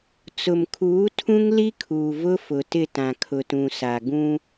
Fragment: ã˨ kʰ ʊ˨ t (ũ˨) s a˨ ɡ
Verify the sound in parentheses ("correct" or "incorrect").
correct